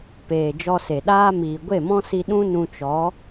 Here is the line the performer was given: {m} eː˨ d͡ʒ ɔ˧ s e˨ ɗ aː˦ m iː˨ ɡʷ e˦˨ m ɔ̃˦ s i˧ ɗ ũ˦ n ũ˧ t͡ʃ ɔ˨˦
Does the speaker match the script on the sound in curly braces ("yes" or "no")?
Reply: no